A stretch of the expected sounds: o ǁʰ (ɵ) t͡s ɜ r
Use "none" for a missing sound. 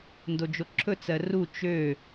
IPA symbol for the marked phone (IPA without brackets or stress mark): ɵ